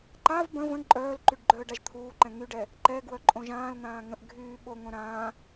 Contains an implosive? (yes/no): yes